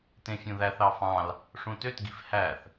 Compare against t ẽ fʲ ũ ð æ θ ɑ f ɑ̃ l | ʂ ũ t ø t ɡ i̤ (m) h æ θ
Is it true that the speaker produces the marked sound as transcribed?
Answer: no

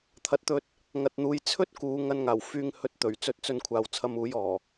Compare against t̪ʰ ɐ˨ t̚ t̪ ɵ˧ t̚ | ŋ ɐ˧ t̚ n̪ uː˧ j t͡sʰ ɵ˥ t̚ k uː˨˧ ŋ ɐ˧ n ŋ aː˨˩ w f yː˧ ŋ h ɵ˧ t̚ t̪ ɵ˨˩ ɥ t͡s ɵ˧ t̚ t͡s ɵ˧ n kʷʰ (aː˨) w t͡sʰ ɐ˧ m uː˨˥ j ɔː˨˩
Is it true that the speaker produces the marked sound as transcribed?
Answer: yes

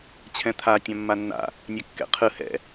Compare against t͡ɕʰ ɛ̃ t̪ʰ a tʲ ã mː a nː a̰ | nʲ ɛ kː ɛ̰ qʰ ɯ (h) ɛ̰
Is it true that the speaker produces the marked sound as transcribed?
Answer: yes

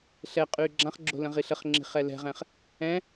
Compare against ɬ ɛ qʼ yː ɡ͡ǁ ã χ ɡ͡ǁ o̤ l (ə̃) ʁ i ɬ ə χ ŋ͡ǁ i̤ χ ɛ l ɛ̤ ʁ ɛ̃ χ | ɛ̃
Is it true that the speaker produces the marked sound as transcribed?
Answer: yes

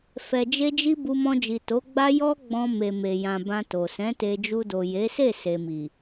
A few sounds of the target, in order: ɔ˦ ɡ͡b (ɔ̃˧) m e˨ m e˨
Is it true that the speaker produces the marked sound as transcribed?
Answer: yes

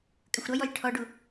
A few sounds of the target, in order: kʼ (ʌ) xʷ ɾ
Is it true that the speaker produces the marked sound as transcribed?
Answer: no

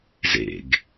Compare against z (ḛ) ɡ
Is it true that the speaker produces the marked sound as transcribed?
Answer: yes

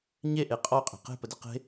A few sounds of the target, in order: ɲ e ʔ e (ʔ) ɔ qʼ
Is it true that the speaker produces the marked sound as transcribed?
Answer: no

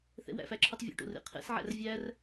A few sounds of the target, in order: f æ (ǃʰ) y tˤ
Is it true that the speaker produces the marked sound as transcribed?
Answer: no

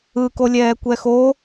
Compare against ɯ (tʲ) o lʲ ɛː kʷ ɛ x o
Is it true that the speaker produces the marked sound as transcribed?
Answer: no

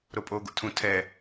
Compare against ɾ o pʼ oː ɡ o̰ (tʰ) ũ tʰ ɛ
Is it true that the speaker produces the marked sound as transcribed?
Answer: yes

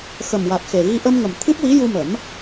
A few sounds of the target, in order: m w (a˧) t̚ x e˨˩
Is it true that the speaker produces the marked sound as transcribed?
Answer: no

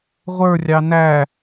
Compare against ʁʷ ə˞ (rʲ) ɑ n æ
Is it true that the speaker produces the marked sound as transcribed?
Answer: yes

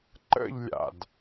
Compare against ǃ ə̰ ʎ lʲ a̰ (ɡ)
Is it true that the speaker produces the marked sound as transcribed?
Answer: no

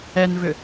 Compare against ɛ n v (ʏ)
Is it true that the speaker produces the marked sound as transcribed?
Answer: yes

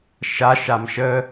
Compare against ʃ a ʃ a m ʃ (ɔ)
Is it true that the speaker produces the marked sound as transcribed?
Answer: no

